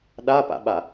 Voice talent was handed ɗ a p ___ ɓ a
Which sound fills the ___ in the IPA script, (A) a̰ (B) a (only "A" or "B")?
A